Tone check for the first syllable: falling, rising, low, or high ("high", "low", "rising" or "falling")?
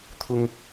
high